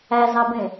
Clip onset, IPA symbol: æ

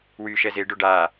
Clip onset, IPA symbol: w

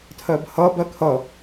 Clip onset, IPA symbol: tʰ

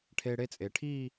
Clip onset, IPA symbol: ʈʰ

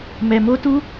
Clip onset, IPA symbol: m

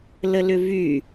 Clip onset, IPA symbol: l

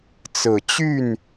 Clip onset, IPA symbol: t͡s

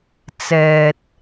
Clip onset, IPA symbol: t͡s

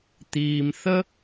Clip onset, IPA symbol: t̪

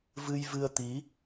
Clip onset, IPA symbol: v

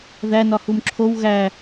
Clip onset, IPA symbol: ð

